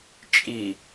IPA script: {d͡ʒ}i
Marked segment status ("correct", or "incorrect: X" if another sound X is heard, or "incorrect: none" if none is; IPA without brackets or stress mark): incorrect: t͡ʃʼ